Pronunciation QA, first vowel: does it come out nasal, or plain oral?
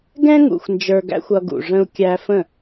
nasal